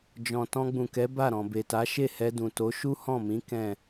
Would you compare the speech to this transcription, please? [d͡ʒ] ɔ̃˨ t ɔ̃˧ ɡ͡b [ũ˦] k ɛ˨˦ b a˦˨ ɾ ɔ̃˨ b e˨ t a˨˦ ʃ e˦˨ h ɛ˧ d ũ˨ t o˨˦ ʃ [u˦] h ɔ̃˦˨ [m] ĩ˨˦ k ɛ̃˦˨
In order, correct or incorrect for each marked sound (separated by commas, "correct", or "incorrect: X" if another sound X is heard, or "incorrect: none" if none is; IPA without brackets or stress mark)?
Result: correct, incorrect: ũ˨, correct, correct